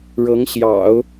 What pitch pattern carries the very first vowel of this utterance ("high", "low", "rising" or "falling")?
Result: rising